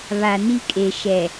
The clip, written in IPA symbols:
βa˨ni˦kʼe˨ ʃɛ˨

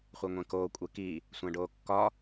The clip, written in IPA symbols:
χʷeŋʷẽkoː kʷʼeki | sʷæ̃ɖoːkːɒ

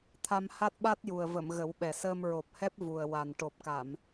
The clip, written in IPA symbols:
t̪ʰa˧m ha˦˥t̚ɓa˦˥t̚ju˨˩ə̯və˨˩˨m ɣə˨˩˦wɓɛ˨˩ səː˧mɹo˨˩p̚hɛ˦˥p̚ vu˨˩ə̯ wa˨˩n ʈo˨˩p̚ka˨˩˨m

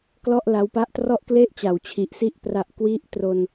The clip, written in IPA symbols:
klɔ˥˩ʔla˦˥wpa˥˩ʔ trɔ˥˩ʔkle˥˩ʔt͡ɕa˩˦w t͡ɕʰi˨˩ʔsi˥˩ʔ pra˨˩ʔkwi˦˥ʔtro˧n

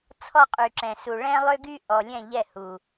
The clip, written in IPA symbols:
t͡sʰɔ˦qʼy˨ǁɛ̃˨su˨ ɭɛ̃˦lˠø˦ɡy˦ ʔɔ˨lʲɛ̃˦˨ʎɛ˦˨hu˨

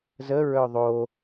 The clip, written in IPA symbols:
zə ɹœðˤo

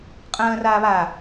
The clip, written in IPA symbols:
qʼə̃ːr aːβa

